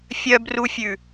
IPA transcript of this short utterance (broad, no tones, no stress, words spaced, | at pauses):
fʲœbrufʲʉ